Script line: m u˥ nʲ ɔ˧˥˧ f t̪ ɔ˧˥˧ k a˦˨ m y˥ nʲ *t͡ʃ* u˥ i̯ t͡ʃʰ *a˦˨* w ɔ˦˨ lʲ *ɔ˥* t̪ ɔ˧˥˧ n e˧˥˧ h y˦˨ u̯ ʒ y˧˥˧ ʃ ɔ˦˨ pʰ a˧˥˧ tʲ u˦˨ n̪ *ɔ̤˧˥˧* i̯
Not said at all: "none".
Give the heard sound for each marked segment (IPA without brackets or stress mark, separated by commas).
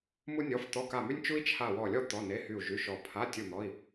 t͡ʃ, a˦˨, ɔ˥, ɔ˧˥˧